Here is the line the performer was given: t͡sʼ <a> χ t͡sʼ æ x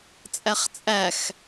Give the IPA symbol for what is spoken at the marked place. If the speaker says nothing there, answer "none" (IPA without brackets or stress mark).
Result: æ